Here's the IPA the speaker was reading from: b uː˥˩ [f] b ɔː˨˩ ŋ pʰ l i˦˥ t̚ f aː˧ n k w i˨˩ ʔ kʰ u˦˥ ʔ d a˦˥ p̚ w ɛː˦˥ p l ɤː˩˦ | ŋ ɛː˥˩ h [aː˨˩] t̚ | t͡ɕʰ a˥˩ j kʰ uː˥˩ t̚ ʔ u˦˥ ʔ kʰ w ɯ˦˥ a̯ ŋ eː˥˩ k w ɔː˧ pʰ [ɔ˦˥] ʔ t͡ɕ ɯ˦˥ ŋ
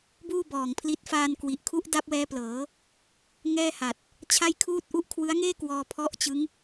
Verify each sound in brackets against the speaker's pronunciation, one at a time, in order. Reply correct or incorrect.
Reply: incorrect: none, incorrect: a˨˩, correct

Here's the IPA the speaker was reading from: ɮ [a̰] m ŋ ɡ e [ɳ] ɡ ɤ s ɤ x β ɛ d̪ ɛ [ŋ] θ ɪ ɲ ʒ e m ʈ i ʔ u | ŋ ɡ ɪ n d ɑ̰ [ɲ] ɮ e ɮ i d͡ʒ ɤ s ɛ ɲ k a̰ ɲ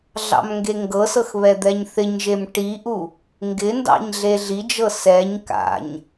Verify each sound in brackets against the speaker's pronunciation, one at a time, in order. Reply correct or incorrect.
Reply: incorrect: ɑ̰, incorrect: ŋ, incorrect: ɲ, correct

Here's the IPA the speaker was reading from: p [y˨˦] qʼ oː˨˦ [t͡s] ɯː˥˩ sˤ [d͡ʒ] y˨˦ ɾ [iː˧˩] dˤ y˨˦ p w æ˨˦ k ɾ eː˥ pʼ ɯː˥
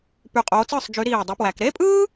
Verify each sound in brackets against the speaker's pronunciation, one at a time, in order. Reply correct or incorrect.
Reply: incorrect: y˧˩, correct, correct, correct

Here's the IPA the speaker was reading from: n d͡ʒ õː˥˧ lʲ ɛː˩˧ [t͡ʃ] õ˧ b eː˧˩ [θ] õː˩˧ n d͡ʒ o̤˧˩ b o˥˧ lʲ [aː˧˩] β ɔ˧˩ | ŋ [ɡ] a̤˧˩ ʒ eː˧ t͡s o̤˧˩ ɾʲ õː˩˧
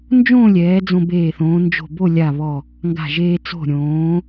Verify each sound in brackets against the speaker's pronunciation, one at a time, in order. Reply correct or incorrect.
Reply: incorrect: d͡z, correct, incorrect: a˧˩, correct

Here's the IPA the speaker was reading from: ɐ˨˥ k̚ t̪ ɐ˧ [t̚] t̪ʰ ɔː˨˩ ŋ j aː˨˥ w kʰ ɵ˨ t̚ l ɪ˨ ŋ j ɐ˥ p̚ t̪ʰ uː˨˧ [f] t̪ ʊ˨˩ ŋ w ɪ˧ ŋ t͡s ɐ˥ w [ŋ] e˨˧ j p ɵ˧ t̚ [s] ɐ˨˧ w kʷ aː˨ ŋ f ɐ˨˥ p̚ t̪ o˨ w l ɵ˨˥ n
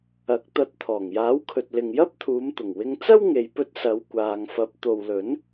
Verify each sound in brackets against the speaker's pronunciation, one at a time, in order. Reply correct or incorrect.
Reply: correct, incorrect: m, correct, correct

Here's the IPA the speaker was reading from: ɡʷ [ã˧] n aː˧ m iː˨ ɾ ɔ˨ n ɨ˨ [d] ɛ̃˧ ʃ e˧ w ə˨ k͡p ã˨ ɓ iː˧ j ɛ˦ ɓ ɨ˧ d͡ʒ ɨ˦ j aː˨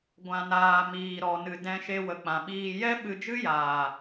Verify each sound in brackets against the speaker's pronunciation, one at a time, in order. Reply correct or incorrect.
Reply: correct, correct

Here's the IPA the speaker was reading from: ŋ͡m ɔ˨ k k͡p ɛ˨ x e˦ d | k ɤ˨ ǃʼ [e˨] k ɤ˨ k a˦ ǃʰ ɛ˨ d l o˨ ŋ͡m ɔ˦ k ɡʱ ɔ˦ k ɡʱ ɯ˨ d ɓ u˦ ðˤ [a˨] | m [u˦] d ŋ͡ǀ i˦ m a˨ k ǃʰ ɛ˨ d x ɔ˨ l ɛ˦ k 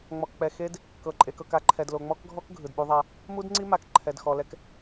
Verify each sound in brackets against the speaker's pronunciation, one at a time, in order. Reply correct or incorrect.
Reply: correct, incorrect: a˦, correct

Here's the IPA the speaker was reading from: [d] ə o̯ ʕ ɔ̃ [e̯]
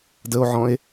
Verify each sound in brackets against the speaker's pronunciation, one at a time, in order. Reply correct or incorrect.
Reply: correct, correct

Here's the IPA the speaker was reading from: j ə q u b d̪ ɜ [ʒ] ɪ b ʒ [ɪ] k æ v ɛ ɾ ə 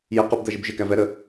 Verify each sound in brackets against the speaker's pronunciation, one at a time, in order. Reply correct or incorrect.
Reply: correct, correct

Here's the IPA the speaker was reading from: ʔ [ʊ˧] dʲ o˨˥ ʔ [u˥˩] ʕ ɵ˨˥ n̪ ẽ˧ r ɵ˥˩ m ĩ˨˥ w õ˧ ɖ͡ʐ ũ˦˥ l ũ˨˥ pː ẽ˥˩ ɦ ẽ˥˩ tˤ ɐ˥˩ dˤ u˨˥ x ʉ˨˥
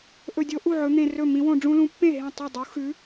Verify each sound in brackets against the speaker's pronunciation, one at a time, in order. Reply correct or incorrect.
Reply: incorrect: ɵ˧, correct

